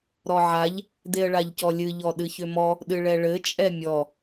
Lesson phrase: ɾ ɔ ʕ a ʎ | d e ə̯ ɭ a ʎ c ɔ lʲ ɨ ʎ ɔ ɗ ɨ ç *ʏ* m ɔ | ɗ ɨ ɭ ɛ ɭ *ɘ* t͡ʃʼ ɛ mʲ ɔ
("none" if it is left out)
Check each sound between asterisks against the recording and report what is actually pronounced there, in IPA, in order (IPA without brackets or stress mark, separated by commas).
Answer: ʏ, ɘ